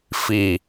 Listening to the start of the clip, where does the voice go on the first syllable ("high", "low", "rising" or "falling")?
low